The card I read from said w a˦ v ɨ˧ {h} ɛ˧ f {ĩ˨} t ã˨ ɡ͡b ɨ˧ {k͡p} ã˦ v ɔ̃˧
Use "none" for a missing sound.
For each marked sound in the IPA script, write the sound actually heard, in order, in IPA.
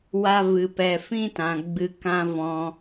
p, ĩ˦, k

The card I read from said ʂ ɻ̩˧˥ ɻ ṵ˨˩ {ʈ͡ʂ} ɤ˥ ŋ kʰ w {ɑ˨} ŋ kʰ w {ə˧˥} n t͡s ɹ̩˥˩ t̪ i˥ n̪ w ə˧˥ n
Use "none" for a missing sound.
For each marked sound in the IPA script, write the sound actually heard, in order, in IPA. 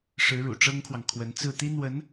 ʈ͡ʂ, ɑ˨, ə˧˥

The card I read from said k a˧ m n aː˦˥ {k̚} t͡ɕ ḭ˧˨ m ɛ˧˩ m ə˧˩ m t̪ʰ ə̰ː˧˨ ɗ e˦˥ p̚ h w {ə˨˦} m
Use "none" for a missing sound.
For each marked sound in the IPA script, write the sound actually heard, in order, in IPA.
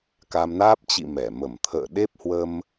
p̚, ə˧

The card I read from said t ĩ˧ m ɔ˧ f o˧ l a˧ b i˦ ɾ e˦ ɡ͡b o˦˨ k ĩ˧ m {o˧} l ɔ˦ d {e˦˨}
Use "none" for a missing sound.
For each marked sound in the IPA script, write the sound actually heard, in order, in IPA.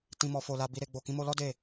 o˧, e˦˨

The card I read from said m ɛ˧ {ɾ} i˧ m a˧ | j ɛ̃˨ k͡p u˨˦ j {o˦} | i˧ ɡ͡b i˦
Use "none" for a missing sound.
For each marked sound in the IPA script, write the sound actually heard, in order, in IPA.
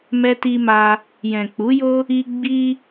t, o˦

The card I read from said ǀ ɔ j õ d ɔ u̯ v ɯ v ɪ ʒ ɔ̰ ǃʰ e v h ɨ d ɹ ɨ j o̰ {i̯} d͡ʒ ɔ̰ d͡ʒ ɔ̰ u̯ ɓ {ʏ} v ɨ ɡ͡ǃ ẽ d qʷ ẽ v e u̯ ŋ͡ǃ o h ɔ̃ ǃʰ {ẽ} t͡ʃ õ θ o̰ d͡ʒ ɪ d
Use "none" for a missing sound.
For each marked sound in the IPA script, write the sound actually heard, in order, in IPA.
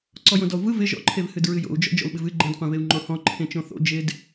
u̯, ɨ, ẽ

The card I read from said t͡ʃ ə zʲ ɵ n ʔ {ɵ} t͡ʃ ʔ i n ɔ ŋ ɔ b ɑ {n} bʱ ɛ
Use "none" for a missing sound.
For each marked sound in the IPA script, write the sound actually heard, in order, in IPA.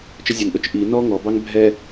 ɵ, ŋ

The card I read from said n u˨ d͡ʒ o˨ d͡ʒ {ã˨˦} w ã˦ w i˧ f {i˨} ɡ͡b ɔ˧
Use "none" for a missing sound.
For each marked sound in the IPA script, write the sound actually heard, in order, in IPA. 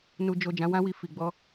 ã˨˦, i˨

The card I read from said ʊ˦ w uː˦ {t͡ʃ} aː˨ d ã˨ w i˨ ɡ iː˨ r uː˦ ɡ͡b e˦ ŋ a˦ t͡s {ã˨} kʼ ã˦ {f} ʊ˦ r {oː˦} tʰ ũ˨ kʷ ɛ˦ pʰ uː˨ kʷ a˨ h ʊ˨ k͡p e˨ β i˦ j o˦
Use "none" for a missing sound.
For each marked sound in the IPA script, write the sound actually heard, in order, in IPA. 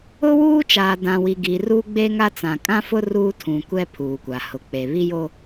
t͡ʃ, ã˨, f, uː˦

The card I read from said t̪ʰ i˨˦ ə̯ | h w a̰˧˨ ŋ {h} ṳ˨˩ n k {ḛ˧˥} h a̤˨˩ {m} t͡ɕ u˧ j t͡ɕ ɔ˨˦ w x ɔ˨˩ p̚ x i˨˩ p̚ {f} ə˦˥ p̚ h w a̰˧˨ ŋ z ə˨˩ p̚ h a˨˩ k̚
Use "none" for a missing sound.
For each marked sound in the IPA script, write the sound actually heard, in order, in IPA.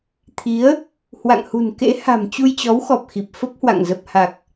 h, ḛ˧˥, m, f

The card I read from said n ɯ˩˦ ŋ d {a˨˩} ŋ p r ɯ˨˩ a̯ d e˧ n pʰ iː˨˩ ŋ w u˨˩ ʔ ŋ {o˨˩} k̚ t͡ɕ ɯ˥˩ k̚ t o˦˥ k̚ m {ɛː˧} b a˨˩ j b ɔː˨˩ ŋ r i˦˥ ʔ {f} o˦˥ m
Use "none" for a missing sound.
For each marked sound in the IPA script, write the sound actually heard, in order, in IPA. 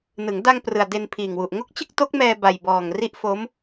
a˧, o˦˥, ɛː˧, f

